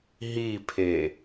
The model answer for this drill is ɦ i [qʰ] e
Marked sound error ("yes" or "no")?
yes